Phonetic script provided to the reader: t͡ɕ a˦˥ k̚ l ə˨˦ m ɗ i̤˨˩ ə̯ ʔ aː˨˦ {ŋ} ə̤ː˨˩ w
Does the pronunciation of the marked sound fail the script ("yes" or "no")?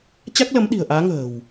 no